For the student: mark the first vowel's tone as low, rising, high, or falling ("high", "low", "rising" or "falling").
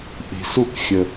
low